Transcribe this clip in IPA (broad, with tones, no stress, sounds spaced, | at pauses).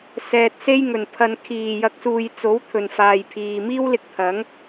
s ɛː˨ t̚ s e˥ j ŋ ɵ˨˩ n pʰ ɐ˨ n kʰ iː˨˩ j ɐ˨˥ k̚ s uː˨ j t͡s o˨˥ w t̪ʰ ɵ˨ n f aː˨ j pʰ iː˨ m iː˥ w l ɪ˧ k̚ t̪ʰ ɐ˨˥ ŋ